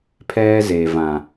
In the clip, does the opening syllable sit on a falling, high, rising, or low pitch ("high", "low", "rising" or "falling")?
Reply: high